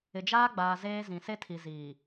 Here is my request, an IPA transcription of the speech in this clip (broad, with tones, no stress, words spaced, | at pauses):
ɪ˨d͡ʒaː˦ ɡ͡baː˨ zeː˦zĩ˨ se˦tʰi˨ziː˨